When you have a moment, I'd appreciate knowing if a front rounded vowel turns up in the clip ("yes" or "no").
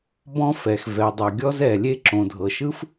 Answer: no